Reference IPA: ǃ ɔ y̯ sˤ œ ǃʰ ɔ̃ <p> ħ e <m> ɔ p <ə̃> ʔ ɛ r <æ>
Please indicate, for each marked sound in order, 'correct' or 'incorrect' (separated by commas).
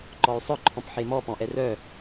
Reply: correct, correct, incorrect, incorrect